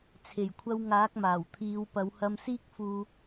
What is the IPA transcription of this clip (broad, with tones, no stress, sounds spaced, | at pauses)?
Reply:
t͡sʰ e˨˩ j kʷʰ ɐ˧ w ŋ aː˨˥ k̚ m aː˨˩ w t̪ʰ iː˨˧ w p ɐ˨˧ w h ɐ˧ m s iː˥ k̚ f uː˧